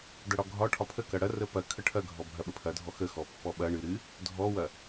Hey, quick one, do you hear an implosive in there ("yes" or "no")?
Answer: yes